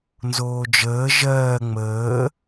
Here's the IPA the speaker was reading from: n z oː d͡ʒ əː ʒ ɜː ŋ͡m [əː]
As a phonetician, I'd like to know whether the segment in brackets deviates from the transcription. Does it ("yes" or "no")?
no